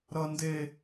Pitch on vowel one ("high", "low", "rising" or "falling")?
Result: high